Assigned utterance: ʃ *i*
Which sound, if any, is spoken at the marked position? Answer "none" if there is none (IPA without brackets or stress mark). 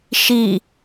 i